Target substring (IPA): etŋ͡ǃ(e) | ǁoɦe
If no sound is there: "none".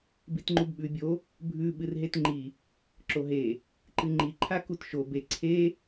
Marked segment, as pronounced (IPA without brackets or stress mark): i